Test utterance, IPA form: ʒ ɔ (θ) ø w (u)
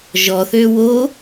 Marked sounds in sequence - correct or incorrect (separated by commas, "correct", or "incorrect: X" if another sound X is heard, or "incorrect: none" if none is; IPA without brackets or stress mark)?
correct, incorrect: o